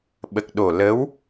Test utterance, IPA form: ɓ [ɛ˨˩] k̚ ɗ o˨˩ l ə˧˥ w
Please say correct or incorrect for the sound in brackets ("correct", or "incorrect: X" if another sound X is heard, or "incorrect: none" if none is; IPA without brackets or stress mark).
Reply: incorrect: ə˨˩